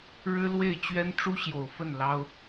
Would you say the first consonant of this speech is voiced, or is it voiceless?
voiced